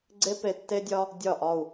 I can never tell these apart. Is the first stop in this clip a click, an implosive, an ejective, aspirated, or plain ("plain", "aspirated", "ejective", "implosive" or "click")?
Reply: click